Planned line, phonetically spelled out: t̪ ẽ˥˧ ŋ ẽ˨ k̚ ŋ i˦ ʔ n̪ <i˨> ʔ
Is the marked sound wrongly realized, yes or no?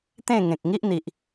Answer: no